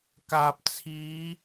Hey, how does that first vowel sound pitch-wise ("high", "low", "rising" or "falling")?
low